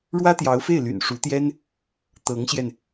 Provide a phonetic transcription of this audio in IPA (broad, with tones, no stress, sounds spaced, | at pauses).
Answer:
ɻ w ä˥ t̪ j ɑ˧˥ ʊ̯ f e˥˩ ɪ̯ l y̰˨˩ n ʂ u˧˥ t̪ j ɛ˥ n | t̪ ɤ˧˥ ŋ ɕ j ɛ˧ n